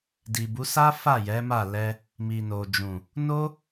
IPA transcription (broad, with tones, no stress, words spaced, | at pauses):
di˨bu˨˦ sa˦fa˦˨ jɛ˨˦ma˦˨lɛ˧ | mi˨no˨d͡ʒũ˨ | no˦